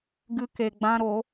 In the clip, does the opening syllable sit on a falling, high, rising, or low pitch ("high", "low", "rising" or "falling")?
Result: high